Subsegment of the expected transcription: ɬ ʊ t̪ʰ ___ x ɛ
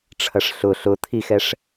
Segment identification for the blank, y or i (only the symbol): i